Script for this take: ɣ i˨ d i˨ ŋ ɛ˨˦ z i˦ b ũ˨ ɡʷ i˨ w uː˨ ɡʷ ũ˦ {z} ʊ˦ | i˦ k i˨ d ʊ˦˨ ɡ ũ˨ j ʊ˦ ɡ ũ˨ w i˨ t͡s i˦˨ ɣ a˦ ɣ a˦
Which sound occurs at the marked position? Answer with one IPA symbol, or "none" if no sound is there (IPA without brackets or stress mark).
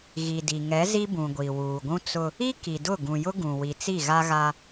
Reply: t͡s